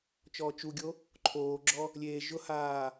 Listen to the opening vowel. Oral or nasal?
oral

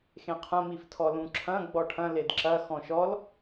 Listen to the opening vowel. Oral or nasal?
nasal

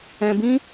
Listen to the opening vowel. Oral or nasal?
nasal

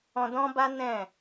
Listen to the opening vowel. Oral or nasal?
nasal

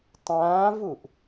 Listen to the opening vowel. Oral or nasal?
nasal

